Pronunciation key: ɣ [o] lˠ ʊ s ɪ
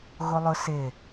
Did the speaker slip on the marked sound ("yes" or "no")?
no